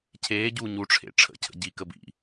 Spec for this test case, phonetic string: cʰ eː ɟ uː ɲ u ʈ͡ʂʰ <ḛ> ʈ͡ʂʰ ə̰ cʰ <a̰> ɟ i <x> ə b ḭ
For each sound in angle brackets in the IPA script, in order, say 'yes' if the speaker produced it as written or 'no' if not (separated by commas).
yes, no, no